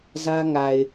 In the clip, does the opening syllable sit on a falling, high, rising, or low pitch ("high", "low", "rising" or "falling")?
high